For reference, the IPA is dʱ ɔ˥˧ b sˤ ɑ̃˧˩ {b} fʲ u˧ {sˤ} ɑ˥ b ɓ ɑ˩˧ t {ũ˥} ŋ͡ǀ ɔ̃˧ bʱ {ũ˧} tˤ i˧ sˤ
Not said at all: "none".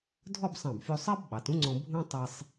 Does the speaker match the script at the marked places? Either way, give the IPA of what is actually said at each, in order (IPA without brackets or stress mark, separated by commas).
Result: b, sˤ, ũ˥, ũ˥